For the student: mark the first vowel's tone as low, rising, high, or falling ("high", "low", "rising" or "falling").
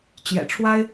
low